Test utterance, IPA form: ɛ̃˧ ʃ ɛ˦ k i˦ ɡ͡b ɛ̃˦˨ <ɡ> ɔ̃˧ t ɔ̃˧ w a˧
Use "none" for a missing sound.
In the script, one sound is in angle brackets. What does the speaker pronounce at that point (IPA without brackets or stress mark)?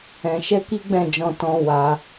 d͡ʒ